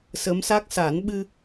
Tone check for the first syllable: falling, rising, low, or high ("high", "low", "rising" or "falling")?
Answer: rising